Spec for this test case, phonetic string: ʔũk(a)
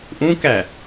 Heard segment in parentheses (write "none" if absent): æ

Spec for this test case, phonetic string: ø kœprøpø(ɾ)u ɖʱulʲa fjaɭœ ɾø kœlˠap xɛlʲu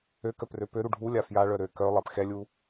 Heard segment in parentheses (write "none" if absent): ɾ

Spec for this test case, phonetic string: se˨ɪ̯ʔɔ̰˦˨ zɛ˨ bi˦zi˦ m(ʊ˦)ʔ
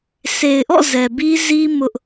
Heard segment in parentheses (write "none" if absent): ʊ˦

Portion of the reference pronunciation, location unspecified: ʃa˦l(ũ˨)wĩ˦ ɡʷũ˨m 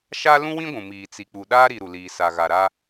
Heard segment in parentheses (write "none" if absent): ũ˦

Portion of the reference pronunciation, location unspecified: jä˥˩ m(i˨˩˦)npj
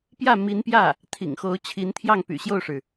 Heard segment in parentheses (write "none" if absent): i˧˥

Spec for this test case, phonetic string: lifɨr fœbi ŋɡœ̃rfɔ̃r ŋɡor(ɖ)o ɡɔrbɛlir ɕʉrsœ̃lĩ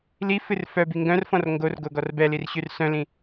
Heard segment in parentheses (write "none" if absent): ɡ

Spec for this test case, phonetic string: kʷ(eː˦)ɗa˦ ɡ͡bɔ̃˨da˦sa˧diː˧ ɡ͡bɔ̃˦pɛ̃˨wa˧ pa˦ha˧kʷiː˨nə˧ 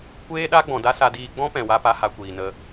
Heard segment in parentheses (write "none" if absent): eː˦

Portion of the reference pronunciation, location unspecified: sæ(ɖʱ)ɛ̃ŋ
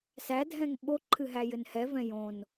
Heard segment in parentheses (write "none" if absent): dʱ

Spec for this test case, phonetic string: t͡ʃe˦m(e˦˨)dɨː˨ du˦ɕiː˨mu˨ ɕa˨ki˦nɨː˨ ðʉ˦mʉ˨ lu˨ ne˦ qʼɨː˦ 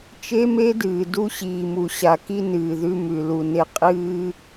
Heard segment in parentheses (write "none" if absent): e˦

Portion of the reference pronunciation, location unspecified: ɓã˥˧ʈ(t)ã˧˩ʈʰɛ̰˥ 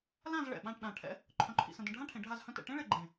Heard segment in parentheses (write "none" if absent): ɗ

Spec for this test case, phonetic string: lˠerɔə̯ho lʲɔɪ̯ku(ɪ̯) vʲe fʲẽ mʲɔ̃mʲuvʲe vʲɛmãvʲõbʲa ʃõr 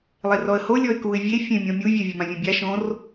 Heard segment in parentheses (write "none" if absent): ɪ̯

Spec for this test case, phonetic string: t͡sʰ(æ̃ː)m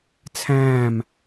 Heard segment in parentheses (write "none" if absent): æ̃ː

